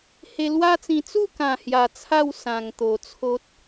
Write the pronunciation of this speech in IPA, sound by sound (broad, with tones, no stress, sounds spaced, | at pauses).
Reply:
h e˧ l w a˦ t͡s ĩ˧ t͡s u˥˧ k ã˨˩ h j a˨˩ t͡sʰ a˥˧ w s ã˨˩ ŋ t̪ o˨˩ t͡sʰ o˦ t̚